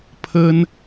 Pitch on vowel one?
high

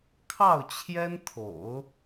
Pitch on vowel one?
falling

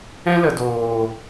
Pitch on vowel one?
high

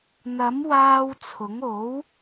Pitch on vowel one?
rising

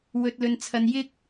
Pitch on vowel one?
low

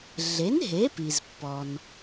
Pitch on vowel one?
rising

